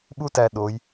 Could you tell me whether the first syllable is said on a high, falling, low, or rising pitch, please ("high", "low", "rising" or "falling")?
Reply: high